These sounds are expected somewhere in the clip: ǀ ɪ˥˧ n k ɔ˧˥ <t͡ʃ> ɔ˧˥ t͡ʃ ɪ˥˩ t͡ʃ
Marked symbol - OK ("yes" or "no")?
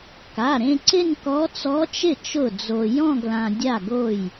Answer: no